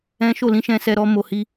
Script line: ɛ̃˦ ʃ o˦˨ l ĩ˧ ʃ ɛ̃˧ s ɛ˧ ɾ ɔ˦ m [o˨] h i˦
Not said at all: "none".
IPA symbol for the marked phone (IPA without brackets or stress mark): o˧